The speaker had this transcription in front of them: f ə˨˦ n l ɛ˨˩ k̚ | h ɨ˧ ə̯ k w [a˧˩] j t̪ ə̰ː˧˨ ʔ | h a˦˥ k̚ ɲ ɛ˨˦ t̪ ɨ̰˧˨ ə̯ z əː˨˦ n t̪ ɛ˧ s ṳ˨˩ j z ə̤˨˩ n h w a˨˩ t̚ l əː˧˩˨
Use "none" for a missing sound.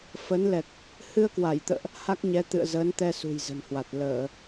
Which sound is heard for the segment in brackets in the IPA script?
a˧˩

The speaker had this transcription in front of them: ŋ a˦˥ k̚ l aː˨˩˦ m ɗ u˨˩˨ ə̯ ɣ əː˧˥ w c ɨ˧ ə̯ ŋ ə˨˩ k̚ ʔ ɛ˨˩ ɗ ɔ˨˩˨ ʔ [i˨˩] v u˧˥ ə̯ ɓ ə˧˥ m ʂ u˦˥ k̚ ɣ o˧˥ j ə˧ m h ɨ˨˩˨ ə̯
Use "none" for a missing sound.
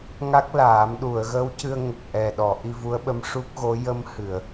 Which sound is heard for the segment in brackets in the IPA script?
i˧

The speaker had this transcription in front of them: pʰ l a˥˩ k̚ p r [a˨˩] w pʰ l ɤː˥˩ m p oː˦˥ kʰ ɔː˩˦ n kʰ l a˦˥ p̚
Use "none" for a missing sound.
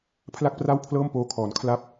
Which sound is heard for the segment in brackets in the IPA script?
a˥˩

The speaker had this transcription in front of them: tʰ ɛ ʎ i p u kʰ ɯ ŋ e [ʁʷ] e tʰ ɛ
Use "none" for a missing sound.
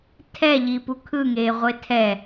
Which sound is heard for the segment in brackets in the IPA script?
ʁʷ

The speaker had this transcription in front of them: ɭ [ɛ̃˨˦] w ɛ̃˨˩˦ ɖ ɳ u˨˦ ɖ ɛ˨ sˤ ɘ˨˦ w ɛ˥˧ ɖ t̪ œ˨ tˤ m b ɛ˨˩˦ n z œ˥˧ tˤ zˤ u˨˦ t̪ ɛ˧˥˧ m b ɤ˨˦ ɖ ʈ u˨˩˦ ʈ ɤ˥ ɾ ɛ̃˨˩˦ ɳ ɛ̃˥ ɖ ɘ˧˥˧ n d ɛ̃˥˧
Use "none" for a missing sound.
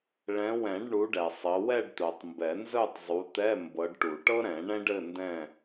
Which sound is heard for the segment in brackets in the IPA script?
ɛ̃˨˦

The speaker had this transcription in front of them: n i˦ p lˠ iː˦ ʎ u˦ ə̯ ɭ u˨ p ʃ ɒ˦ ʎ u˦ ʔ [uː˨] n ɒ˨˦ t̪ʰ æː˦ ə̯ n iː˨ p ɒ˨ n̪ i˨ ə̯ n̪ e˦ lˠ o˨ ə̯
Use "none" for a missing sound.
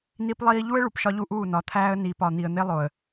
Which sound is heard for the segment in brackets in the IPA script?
uː˦˨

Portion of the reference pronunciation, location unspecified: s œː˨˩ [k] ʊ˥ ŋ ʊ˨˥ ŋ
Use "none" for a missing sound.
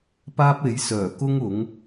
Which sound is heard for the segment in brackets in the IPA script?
k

